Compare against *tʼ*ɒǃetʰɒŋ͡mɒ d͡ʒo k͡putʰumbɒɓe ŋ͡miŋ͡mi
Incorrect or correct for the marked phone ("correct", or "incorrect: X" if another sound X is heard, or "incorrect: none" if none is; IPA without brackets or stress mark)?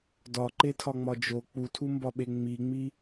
incorrect: d